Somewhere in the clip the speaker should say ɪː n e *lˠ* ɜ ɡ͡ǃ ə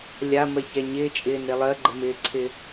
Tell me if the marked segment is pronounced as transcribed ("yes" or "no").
yes